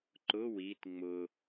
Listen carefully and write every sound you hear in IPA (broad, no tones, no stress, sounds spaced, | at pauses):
ǃ ʊ w i t ŋ͡m ʊ